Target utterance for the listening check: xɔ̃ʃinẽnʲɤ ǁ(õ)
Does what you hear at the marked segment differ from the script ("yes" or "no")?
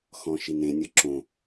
no